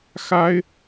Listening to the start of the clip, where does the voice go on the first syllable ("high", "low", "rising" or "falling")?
high